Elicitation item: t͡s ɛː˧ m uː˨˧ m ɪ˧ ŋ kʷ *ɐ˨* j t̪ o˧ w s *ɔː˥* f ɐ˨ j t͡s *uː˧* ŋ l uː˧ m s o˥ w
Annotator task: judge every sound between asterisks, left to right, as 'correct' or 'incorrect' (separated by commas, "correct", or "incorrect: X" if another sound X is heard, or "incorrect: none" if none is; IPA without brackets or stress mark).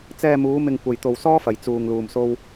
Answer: correct, correct, correct